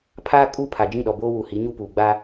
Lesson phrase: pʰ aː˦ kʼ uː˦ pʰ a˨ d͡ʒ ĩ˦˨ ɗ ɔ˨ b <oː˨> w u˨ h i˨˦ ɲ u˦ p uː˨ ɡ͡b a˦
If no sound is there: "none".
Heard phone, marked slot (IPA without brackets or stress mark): oː˦